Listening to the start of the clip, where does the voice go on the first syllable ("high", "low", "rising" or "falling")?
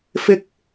low